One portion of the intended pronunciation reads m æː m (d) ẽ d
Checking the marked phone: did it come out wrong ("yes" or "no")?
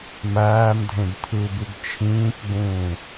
yes